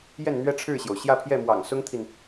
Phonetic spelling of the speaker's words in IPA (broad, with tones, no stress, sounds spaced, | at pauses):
j ɛ˥˩ n n̪ ɥ ɛ˥ ʈ͡ʂʰ ɻ̩˥˩ ɕ j o˩ ʊ̯ ɕ j ä˥˧ pʰ j ɛ˥˩ m w ɑ̰˨˩ ŋ s ʊ˥ ŋ t̪ʰ i˨ n